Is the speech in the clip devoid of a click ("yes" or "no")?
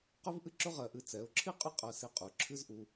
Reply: no